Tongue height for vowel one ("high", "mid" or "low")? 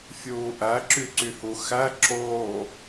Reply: high